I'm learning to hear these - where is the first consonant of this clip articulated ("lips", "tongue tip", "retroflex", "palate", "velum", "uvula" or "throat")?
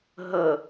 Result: throat